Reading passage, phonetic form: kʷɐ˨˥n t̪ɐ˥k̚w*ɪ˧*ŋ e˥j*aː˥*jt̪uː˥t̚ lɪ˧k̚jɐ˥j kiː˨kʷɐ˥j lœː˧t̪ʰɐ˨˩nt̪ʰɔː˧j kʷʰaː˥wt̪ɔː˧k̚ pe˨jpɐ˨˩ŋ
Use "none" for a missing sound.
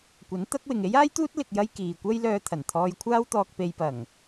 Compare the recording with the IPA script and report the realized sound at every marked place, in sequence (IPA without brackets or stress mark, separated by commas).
ɪ˨, aː˥